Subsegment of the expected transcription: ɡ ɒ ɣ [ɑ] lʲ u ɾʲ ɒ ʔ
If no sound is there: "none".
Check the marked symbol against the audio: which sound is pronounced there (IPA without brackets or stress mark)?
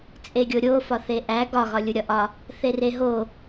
ɒ